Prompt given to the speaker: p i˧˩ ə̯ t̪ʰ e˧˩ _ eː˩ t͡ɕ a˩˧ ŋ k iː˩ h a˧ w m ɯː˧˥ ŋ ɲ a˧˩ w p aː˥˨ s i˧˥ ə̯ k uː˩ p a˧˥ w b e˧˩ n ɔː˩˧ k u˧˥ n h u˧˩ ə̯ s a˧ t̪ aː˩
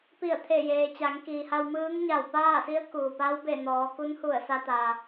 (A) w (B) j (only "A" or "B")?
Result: B